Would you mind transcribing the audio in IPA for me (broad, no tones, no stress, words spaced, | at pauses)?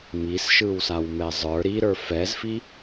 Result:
misʃɯwsawmɛ zˤə˞ ɾiɾə˞ fɛzfi